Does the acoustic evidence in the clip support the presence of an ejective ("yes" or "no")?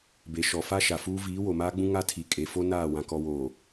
yes